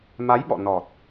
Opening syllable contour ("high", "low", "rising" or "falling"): rising